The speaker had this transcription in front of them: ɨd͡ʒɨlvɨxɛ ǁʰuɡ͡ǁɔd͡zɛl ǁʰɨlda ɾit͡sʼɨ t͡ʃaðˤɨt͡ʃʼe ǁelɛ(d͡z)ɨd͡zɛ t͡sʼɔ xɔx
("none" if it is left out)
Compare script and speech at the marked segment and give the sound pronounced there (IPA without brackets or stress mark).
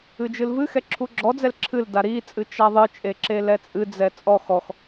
t͡sʼ